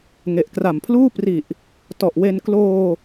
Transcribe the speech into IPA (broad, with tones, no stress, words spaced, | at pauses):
ŋe˨˩ʔkra˨˩mpʰluː˥˩ pri˨˩ʔ | tɔ˨˩ʔwe˧n kloː˧